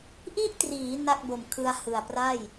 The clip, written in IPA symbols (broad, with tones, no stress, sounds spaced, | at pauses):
ʔ i˥˩ ʔ t r iː˩˦ n a˥˩ k̚ b o˨˩ m kʰ ɯ˧ a̯ h ɯ˨˩ a̯ p r a˥˩ j